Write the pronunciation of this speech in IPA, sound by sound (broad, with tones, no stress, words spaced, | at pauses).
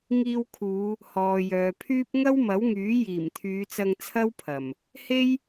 ŋiː˧wkʰuː˨˧ | hɔː˨jœː˨pʰyː˥p̚ ŋɐ˥wmɐ˨˥wŋyː˨˥ jiː˨˩mt̪ʰyː˨˧t͡sɐ˧ŋ t͡sʰɐ˥wpʰɐ˨˩m | he˥j